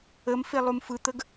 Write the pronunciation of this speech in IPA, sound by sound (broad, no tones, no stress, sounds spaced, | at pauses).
ə m f e lˠ u m f ɯ t̪ ə ɡ